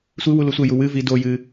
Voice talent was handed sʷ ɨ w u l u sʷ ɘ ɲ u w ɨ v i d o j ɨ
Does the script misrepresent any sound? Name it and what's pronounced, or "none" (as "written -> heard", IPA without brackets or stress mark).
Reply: ɲ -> j